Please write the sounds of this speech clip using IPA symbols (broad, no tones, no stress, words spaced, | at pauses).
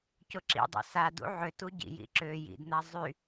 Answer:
cʊǁḭdˤṵ sadṵ ʕʏtu ɟḭjḭ ǁø jḭdn̪a zˤy